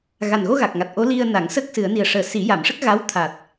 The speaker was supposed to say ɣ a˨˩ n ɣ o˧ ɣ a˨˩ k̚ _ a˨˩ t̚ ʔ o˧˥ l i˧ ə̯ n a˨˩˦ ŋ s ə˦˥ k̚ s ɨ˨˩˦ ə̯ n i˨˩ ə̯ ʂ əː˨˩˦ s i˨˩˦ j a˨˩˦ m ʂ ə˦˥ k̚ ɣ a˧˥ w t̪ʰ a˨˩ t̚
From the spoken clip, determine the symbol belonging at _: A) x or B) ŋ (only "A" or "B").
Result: B